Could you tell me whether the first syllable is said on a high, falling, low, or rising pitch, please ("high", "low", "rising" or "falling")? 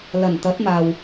low